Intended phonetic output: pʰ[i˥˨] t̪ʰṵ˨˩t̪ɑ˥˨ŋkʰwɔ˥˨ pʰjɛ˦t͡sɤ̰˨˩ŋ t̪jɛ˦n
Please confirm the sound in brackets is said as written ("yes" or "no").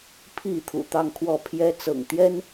yes